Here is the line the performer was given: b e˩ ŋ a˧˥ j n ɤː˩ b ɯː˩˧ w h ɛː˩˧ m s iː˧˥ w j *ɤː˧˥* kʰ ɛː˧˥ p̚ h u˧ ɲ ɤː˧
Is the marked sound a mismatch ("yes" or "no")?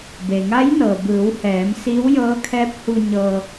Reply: no